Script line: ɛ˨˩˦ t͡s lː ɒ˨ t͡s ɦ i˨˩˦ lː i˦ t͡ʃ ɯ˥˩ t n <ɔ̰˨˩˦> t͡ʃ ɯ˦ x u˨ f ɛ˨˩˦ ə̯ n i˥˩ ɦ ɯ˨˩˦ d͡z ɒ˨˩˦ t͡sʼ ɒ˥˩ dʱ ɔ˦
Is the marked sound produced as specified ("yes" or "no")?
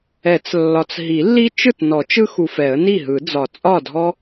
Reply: no